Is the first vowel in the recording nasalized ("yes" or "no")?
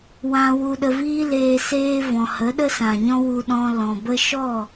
yes